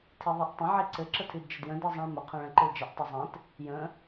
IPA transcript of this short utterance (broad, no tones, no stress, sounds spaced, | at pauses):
tʰ i ðˤ i ʔ tˤ ə̃ ʕ i ǀ ɘ ǁ ə tʰ i d d͡ʒ ə d j ə̃ d i zˤ ɛ̃ ɭ m ə qʰ ɛ̃ ɭ ɛ̃ ǃ ɘ ɭ d͡ʒ ɘ ʔ tˤ ɘ zˤ ɛ̃ t | j ə̃